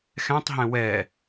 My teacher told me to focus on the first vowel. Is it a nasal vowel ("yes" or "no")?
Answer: yes